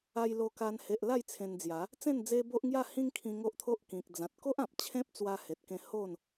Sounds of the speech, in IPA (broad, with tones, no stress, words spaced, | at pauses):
a˧jlo˧ka˧n he˨ʔla˥˧j t͡sʰẽ˧nd͡zja˨˦ | t͡sẽ˥˧nd͡ze˦bo˦ʔŋja˥˧ hĩ˦ŋkʰĩ˧ ŋo˦ʔt̪ʰo˦ʔ kĩ˨k̚ d͡zã˨t̚ko˦ʔ ã˨p̚ t͡ɕʰẽ˦p̚t͡swa˧he˨t̚kẽ˧ ho˥˧n